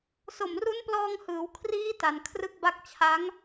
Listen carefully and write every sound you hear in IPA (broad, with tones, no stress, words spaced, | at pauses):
so˨˩mru˦˥nplɔː˧ŋhɯː˩˦w kʰriː˦˥ ta˧n kʰrɯ˥˩k̚ba˥˩k̚ t͡ɕʰa˦˥ŋ